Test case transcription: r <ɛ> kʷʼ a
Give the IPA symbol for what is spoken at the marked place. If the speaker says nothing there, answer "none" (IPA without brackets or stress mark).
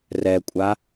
ɛ